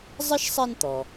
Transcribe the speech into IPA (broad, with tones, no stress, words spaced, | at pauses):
zˤɪ˥ʃsˤe˦nt̪ɔ˩